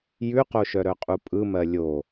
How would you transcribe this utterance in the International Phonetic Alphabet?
j ʉ q o ʃ œ ɾ œ qʼ u pʼ ɯ m ɜ lʲ o

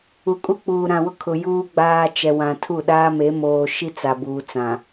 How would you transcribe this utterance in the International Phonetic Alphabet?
u˨ kʼ u˦ k͡p uː˨ ɾ ã˨ w ʊ˦ kʰ ʊ˨ j uː˦ ɡ͡b aː˦ t͡ʃ ɛ˨ w ã˨ tʰ u˦˨ ɗ aː˦ m e˨˦ m oː˨ ʃ i˦ t͡s a˨ b uː˨ t͡s ã˨

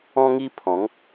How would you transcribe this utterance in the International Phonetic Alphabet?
ɔ̃˦ ŋ i˦ pʰ ɔ̃˨˦ ŋ

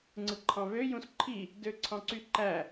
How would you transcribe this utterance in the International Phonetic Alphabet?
ŋ͡ǀ ɯ ǃʰ ɑ̃ β ø j ũ s ǃʰ i | d ø ǀʰ ɑ̃ ǀ y ǃ æ

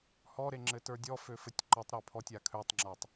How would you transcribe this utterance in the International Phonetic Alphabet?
h ɔ ɾ e ŋ͡ǁ ɘ t ə˞ dʲ ɔ f ø f ɘ tʲ ǃ ɔ tˤ ɾ a pʰ ɔ tʲ a kʰ ø tˤ ŋ͡ǁ a tˤ

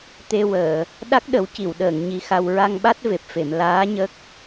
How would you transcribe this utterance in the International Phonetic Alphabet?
t̪ e˧ w əː˨˩˨ | ɗ a˦˥ k̚ ɗ ə˨˩˦ w c i˨˩˨ w ɗ əː˨˩˨ ŋ ɲ i˧˥ x a˧ w ɹ a˧ ŋ ɓ a˦˥ t̚ v e˨˩ p̚ f e˨˩˨ m l aː˧˥ ɲ ə˦˥ k̚

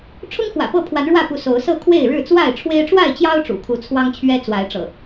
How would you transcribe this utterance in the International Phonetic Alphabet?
ʈ͡ʂʰ ʊ˦ ŋ x w ä̰˨˩ p ɤ˥˨ pʰ w a˨˦ n ɻ w ä˥˨ p u˨˦ s o˨˦ ʊ̯ s ɤ˥˨ kʰ w e˥˨ ɪ̯ ɻ ɻ̩˥˨ t͡s w a˥˨ ɪ̯ ʈ͡ʂʰ w e˦ ɪ̯ ʈ͡ʂ w a˥˨ ɪ̯ t͡ɕ j ɑ˦ ʊ̯ ʈ͡ʂ ṵ˨˩ kʰ u˨˦ t͡sʰ w ɑ˦ ŋ t͡ɕʰ ɥ ɛ˦ t͡s w a˨˦ ɪ̯ ʈ͡ʂ ɤ̰˨˩

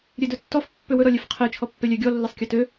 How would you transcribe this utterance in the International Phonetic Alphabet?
ɾʲ e d ɵ tː ɔ f pː ø w ɵ ɾ ɔ lʲ e f qʰ e t͡ʃʰ ɔ pː e lʲ ɛ ɡʲ ɔ lː e sˤ kʲ ɔ t ø

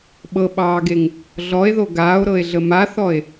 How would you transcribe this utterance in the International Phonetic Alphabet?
ɓ ɤ ɓ ɑː ɡ e ŋ | ɮ ɔ e̯ ð o ɡ aː o̯ ɾ ɤ e̯ ɮ ə m a θ ɔ e̯

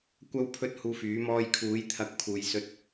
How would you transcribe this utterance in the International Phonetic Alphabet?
kʷ ɐ˥ w pʰ ɵ˥ t̚ h uː˧ f yː˨˥ m ɔː˧ j kʰ uː˨˥ j t̪ʰ ɐ˧ k̚ pʰ uː˧ j s ɵ˥ t̚

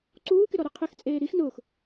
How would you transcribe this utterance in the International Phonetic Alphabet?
ǀ uː k ɪ ɾ ɔ ɾ e qʰ ɪ x t͡sʼ eː ɾ i x n ʊː x

